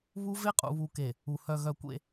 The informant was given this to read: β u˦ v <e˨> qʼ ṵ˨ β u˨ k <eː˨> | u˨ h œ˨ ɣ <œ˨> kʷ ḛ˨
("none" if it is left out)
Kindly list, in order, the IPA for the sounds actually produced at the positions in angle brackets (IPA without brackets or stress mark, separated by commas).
e˦, e˨, œ˨